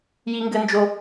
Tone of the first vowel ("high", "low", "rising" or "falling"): low